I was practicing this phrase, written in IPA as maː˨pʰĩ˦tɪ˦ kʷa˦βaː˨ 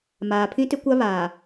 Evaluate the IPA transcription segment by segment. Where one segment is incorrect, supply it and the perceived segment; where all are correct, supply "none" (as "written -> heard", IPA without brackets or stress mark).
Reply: none